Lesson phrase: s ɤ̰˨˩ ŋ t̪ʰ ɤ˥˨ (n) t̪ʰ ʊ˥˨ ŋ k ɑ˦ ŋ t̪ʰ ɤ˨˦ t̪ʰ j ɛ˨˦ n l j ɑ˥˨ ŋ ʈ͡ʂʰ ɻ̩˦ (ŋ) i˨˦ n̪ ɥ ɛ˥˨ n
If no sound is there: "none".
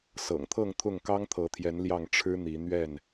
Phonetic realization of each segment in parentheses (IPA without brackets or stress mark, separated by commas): ŋ, n̪